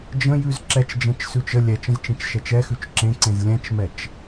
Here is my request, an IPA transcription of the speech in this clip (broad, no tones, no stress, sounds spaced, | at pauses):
d͡ʒ ə̃ j ʉ z ǁ ɛ t͡ʃ d͡ʒ ɛ̃ t͡ʃ s ʉ t͡ʃ ə lʲ ɛ t͡ʃ ə̃ z t͡ʃ ẽ t͡ʃ ʃ ɛ t͡ʃ ɛ x ʉ t͡ʃ ǁ ẽ ǀ ẽ z lʲ ɛ̃ t͡ʃ m ɛ t͡ʃ